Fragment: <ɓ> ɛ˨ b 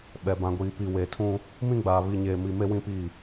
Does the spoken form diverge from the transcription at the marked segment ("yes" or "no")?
no